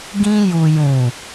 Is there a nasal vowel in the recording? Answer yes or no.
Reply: yes